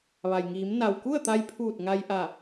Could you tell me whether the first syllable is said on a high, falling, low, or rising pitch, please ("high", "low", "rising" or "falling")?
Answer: low